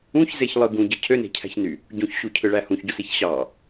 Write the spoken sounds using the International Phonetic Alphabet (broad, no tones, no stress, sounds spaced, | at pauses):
ũ ç z e ç lˠ ɯ ɡ ũ ɟ ɯ cʰ ø n e̤ cʰ æ̤ ç n y | ɟ ũ ç ɕ u cʰ ɯ ɭ æ h ũ ç ɟ u s i ç ɕ ɑ